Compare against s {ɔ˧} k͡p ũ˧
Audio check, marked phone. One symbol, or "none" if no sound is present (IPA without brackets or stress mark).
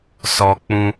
ɔ˧